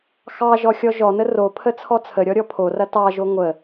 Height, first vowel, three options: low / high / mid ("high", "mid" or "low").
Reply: low